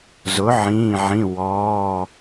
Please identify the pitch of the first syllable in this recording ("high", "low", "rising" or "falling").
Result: rising